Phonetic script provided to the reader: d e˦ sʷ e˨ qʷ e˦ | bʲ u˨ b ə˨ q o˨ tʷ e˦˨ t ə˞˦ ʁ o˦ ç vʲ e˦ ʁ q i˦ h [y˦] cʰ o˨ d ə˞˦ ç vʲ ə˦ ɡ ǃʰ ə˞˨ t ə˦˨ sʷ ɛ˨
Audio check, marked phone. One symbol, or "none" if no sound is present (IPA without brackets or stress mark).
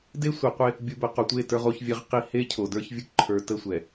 e˦